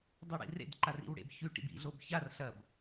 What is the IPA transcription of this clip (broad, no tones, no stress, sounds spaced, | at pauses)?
dˤ ɵ ɽ ḭ r ḛ d ǃ a r ḭ w ɽ ḛ b ç ʉ ʈ ḭ b ḭ ɮ o b ç a r ɬ ɐ b